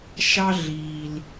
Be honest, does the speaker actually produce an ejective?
no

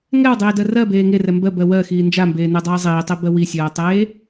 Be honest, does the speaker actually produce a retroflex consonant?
no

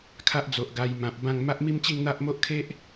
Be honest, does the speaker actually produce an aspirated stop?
yes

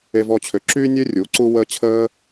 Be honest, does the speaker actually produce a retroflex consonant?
no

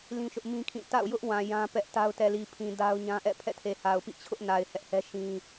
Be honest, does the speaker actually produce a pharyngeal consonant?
no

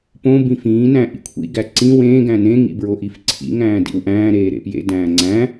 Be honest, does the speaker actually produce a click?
yes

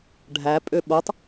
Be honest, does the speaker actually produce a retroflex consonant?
yes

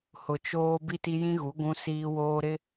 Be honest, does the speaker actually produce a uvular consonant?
no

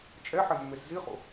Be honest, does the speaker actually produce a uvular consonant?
yes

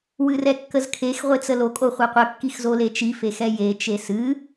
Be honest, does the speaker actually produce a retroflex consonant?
no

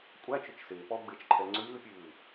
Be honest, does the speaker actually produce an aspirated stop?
yes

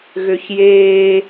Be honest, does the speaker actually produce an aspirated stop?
no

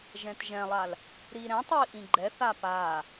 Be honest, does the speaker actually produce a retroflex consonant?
no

